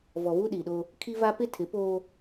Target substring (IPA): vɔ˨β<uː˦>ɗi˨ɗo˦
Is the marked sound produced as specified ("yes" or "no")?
no